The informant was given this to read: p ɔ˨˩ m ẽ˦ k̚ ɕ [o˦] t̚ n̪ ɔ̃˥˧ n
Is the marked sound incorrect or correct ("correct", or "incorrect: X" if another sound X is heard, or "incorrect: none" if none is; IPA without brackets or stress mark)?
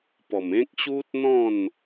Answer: incorrect: u˦